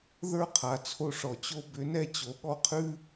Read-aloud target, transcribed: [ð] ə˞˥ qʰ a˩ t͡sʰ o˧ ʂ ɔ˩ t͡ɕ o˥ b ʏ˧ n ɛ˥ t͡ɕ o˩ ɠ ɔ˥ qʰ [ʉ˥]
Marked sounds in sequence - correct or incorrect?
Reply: correct, correct

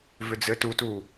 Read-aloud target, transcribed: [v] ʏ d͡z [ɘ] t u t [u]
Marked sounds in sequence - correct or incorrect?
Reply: correct, correct, correct

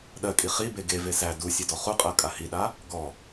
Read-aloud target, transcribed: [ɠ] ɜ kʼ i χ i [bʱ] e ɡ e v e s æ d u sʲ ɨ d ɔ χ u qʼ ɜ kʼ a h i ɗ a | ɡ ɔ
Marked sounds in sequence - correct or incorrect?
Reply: incorrect: ɗ, incorrect: b

